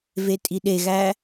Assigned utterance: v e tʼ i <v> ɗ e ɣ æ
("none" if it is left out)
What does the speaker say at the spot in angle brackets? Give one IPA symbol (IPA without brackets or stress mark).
none